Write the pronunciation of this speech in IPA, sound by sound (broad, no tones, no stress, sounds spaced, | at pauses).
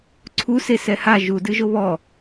ǀʰ u s e s ɛ h a ʒ u d ɨ ʒ o β ɔ